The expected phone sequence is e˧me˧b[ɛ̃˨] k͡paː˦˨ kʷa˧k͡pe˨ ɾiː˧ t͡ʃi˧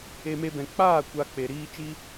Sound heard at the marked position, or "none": ɛ̃˨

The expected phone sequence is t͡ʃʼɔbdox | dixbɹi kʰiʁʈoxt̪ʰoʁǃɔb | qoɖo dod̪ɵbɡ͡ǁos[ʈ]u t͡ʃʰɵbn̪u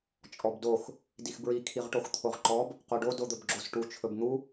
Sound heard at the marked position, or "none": ʈ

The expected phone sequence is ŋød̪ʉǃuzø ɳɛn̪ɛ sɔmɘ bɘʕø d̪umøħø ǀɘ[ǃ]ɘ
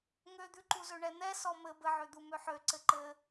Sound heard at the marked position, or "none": ǃ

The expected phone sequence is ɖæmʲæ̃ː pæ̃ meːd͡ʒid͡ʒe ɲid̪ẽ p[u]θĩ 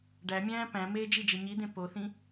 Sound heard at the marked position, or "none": o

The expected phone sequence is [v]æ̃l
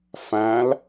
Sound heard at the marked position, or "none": f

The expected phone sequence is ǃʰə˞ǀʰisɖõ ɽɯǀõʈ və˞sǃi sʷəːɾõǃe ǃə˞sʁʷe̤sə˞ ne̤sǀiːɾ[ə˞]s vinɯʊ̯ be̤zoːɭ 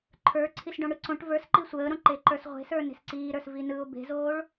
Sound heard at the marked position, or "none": ə˞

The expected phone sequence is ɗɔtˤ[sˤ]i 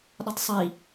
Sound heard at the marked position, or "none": sˤ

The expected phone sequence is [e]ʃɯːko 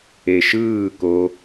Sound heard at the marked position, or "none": e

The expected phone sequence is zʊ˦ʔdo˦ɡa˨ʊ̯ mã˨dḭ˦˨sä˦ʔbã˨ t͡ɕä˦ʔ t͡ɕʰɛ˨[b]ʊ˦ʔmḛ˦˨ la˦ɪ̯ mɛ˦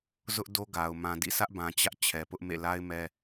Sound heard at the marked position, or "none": p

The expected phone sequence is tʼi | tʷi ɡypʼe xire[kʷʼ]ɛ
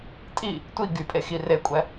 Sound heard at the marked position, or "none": kʷʼ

